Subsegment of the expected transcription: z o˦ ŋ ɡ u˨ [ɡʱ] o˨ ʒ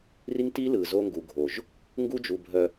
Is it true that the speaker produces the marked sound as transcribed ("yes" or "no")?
yes